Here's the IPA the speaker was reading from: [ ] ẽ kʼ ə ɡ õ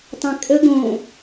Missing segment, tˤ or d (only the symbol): tˤ